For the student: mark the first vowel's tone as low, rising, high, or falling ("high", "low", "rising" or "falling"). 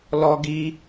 high